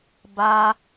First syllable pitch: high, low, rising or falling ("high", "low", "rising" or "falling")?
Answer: high